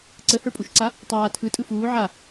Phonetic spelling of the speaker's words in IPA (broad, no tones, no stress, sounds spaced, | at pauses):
ǀ ə h ə˞ pʼ u ʃ ǀ a | tˤ aː tʰ ɯ tʼ ɯ f uː ʕ a